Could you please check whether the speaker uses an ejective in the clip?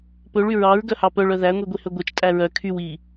yes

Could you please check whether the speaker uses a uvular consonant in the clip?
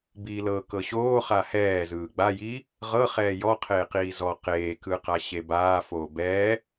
yes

